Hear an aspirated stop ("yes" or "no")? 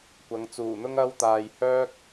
no